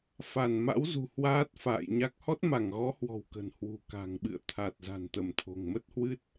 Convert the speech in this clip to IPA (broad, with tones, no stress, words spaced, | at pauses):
fa˧˩n ma̰˧˥w zṳ˨˩ hwaː˦˥t̚fa̰ː˧˨jɲa˦˥k̚ hɔ˦˥t̚ma˧˩ŋɣɔ˨˦hwɔ̤˨˩w kə̤˨˩nhwṳ˨˩ ka̤˨˩ŋɓɨ̰˧˨ə̯t̪ʰa˨˩t̚ za̤˨˩nt̪ə˧˩mt̪ʰo̤˨˩ŋ mə˦˥t̚hwɨ˦˥t̚